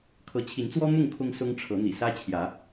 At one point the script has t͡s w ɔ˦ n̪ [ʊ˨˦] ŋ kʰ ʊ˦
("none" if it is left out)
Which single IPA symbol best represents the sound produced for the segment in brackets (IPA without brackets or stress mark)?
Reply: ʊ˥˨